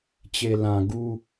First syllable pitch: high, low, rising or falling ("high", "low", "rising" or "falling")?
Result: low